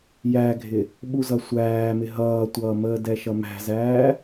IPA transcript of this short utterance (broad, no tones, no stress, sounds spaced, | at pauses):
j æ ɡʱ ɪ | ɓ u z ʌ sʷ æː m ɪ ɦ ʌː tʷ ʌː m əː d ɛ ʃ ʌ m æ̤ z æː